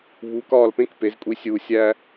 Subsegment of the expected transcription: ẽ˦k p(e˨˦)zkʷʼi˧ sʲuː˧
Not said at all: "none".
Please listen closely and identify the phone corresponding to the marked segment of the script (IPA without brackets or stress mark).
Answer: e˨˦